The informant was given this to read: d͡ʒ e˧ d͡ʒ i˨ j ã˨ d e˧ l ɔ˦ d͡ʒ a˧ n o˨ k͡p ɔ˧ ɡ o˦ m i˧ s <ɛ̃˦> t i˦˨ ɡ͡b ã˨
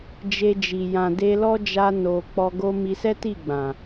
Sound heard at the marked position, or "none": ɛ˦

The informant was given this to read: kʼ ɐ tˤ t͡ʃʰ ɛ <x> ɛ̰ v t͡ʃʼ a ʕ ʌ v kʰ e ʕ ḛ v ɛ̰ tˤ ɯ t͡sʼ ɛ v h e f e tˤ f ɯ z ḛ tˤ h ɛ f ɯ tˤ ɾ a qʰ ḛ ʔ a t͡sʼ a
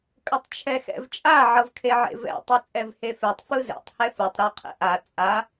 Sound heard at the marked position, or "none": x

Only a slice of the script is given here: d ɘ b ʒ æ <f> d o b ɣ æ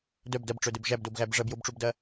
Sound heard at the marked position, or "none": b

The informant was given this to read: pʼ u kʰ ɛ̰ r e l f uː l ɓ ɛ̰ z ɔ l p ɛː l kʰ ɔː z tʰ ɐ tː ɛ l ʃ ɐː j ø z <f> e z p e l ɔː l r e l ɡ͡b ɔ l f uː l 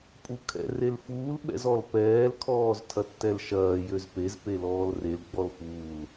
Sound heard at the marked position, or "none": p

